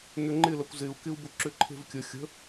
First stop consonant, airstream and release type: click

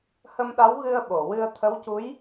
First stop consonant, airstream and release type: implosive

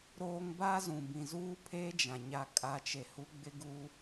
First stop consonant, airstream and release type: plain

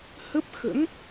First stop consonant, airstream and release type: plain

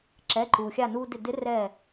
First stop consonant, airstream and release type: click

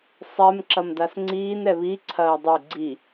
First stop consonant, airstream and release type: click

